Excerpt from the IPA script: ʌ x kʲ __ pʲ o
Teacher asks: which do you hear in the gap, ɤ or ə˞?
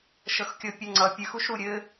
ɤ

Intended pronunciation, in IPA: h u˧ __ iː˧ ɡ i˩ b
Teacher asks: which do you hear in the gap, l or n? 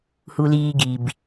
l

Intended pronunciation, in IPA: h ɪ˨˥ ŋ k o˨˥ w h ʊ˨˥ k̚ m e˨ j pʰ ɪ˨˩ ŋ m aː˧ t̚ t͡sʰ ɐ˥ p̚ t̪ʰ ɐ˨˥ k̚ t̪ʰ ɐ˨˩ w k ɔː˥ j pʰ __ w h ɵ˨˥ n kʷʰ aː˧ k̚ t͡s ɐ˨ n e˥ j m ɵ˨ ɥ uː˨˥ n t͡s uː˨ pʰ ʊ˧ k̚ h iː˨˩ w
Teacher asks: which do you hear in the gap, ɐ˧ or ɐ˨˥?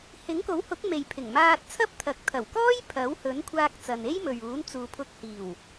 ɐ˨˥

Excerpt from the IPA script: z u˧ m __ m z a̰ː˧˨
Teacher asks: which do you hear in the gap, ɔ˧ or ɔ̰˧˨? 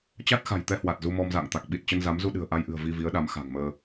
ɔ˧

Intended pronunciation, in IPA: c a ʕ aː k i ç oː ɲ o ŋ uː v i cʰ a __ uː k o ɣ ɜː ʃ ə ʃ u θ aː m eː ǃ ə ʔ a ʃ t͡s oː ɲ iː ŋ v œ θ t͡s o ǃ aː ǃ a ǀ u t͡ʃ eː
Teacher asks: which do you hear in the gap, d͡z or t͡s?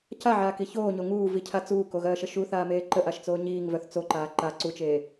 t͡s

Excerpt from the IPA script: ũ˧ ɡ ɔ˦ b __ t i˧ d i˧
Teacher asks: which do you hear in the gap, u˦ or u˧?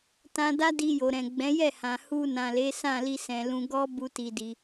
u˦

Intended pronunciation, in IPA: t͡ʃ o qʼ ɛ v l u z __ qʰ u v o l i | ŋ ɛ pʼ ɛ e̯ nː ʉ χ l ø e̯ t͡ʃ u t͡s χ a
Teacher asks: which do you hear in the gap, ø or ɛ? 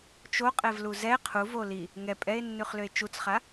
ɛ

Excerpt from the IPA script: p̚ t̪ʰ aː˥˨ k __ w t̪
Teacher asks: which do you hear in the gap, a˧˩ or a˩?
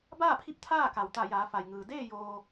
a˩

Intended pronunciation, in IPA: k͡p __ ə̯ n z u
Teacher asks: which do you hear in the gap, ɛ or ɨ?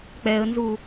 ɛ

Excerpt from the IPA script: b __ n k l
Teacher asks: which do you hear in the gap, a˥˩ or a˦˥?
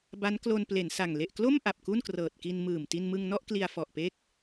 a˦˥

